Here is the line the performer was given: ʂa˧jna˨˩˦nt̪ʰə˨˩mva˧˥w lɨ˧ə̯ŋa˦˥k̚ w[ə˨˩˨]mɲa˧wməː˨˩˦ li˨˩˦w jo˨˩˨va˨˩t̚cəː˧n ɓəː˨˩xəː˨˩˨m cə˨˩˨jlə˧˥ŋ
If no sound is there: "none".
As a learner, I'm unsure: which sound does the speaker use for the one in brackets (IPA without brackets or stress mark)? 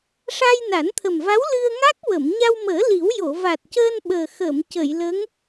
ə˨˩˨